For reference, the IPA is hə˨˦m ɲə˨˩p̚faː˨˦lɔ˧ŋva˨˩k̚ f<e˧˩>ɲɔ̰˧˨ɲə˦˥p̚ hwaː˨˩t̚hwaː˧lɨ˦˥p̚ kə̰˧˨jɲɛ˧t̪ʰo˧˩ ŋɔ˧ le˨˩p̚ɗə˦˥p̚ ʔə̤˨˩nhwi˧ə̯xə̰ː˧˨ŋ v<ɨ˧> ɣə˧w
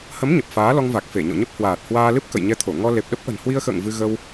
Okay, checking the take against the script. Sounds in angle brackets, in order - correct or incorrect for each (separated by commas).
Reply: correct, correct